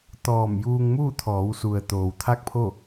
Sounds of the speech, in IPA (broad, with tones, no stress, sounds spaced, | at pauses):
t̪ ɔː˧˩ m j uː˧ ŋ m uː˥˨ t̪ʰ ɔː˩˧ w s u˩ ə̯ t̪ oː˩ w t̪ʰ a˥˨ k̚ pʰ o˥˨